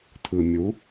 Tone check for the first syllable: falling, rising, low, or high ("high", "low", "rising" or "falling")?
low